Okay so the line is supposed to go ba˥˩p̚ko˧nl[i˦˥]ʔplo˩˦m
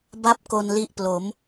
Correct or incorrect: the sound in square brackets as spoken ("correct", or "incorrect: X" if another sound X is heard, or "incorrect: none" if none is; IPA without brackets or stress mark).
correct